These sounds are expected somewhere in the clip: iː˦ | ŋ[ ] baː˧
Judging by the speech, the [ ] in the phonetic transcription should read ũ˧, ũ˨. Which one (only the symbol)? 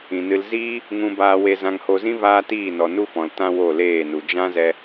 ũ˧